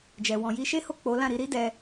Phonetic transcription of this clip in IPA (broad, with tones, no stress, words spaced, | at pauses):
d͡ʒɛ˨ wɔ̃˨ji˧ʃe˦ho˦˨ k͡po˨˦ lã˦˨ɾi˧ɾi˦ dɛ˧